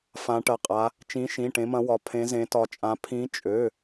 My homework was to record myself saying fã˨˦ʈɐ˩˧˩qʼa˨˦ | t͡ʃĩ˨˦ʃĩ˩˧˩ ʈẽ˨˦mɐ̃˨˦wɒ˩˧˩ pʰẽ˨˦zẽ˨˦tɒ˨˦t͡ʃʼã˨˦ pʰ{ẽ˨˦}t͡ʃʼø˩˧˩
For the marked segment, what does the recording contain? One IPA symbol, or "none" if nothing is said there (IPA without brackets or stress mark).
ĩ˨˦